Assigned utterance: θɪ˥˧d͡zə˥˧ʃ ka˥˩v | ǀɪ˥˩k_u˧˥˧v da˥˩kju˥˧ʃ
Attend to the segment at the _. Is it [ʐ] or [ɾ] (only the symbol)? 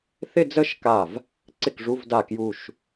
ʐ